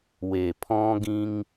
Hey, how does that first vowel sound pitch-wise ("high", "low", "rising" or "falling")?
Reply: low